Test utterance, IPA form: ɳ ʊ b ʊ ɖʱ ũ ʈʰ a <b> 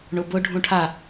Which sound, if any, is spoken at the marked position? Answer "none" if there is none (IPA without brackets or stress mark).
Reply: none